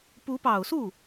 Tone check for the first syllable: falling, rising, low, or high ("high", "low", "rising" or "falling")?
rising